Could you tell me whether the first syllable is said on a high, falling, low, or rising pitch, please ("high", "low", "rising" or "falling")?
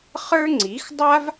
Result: high